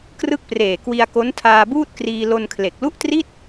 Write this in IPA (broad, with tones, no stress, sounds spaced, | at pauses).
k r ɯ˥˩ k̚ p r eː˨˩ k w i˧ a̯ k o˦˥ n tʰ aː˧ b uː˥˩ t̚ k r iː˧ l o˧ n kʰ l e˨˩ k̚ l u˥˩ ʔ t r i˥˩ t̚